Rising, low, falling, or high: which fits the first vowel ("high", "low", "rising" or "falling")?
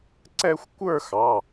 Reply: high